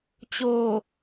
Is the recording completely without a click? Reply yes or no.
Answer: yes